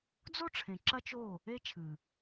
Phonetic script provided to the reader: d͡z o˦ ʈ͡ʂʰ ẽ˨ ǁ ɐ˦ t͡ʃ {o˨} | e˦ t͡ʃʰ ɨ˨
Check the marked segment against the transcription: incorrect: o˦˨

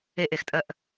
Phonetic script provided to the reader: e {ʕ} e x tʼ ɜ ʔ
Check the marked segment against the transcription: incorrect: ʔ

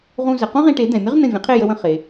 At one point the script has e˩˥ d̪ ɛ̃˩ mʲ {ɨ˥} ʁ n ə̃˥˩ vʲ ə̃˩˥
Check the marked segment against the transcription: incorrect: ə˥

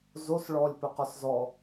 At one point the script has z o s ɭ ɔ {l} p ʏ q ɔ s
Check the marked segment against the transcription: incorrect: lʲ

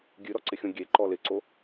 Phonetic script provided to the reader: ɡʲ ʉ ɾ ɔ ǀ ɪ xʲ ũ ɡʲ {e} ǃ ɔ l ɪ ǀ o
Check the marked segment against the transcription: correct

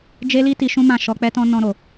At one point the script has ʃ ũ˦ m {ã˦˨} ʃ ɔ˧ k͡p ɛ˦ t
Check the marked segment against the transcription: correct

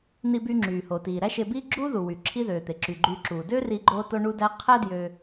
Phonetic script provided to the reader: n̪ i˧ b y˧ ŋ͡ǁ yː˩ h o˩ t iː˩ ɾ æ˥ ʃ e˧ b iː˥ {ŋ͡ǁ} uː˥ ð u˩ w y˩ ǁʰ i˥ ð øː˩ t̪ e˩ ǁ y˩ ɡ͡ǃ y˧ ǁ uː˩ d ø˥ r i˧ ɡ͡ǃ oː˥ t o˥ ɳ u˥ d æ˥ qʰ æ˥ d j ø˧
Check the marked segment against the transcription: incorrect: ɡ͡ǁ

